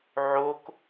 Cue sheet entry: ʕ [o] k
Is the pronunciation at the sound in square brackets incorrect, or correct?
correct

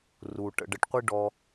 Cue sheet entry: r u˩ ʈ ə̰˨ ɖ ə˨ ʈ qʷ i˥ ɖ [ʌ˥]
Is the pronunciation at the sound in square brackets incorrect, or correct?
incorrect: ɔ˥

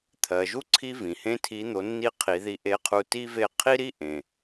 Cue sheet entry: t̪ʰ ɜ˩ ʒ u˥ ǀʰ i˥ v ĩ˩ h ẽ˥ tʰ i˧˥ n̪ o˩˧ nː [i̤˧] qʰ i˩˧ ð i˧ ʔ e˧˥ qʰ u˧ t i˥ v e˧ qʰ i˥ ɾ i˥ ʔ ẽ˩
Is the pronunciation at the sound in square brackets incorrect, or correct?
incorrect: i˧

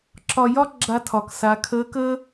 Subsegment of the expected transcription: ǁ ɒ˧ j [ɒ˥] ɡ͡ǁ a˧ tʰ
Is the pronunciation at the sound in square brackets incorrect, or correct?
correct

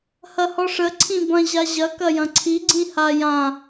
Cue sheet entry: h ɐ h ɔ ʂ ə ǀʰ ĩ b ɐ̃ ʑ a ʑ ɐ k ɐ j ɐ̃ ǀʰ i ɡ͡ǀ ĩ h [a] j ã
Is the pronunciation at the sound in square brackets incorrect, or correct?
correct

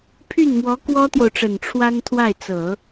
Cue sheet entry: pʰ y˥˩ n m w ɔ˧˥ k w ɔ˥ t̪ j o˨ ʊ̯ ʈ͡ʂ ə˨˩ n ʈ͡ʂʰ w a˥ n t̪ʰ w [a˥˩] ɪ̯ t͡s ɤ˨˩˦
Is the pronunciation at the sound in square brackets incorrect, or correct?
correct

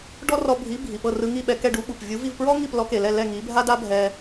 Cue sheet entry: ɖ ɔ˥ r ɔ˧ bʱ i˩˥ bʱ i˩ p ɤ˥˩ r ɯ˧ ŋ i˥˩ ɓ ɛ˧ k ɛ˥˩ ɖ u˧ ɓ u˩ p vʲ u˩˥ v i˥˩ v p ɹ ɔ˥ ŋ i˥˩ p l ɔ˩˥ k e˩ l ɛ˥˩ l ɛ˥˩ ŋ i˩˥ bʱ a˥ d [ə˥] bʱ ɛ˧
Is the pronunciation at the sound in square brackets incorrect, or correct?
incorrect: a˥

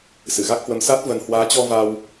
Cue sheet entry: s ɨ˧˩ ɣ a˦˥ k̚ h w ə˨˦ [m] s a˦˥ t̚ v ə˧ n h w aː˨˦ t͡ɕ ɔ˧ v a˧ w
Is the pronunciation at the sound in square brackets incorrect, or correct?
correct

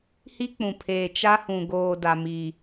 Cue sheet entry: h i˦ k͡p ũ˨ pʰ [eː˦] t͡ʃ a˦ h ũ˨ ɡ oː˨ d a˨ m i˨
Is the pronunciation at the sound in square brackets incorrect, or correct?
incorrect: eː˨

